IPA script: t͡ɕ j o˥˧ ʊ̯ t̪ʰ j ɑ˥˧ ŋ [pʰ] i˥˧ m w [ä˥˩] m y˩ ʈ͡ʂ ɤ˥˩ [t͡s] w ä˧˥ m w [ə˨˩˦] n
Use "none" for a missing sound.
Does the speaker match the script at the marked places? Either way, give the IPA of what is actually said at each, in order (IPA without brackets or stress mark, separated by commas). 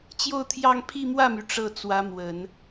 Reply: pʰ, ä˥˩, t͡s, ə˨˩˦